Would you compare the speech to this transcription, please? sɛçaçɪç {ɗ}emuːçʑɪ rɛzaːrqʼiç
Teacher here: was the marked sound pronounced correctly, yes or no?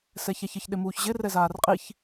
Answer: yes